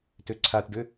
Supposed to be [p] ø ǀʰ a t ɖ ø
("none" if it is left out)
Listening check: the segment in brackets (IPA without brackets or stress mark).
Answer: t